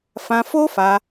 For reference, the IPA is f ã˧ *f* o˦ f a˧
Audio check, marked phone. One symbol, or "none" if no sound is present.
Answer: f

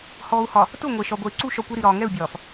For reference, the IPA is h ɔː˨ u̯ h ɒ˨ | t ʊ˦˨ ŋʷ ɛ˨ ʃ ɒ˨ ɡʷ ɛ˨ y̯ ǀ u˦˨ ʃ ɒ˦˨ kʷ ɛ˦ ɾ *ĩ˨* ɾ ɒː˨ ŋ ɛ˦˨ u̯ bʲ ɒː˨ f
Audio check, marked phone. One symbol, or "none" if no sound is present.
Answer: i˨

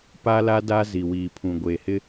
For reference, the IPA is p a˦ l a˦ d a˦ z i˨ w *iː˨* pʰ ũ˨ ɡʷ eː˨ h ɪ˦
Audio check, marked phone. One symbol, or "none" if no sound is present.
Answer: iː˨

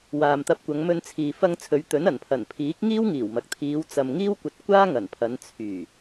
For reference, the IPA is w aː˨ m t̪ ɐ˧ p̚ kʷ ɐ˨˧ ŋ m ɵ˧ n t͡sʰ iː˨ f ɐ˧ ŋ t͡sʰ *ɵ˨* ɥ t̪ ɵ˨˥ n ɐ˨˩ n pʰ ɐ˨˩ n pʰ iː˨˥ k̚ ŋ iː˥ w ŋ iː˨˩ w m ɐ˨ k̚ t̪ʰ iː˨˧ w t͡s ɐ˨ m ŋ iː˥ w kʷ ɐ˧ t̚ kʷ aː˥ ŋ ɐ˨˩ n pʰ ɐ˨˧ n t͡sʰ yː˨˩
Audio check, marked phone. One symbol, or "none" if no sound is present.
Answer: ɵ˨˧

